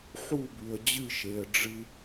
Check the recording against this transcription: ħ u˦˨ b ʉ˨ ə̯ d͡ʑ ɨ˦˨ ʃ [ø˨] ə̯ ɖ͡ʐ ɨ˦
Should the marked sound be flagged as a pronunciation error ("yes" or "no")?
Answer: yes